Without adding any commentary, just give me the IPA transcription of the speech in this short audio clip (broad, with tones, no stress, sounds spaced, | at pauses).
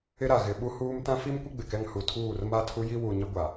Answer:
ɪ˦ ɾ a˨ ɣ ɪ˨ ɓ u˦ h uː˦ m t ã˦ f i˦ m kʷ ɪ˦ ɡ͡b ɪ˨ k ɛ˦ ŋ h u˨ tʰ uː˦˨ r m a˦ tʰ u˦ j i˦ w u˨ ɲ ɪ˦ ɡʷ a˨